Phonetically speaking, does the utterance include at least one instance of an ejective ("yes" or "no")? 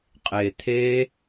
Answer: yes